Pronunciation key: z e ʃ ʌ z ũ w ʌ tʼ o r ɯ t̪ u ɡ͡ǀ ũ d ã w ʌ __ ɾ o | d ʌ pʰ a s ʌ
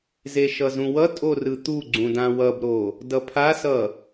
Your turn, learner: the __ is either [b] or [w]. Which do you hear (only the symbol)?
b